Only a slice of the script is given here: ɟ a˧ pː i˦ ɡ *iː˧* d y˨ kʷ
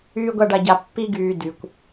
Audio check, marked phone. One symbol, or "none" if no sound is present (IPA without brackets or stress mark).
yː˧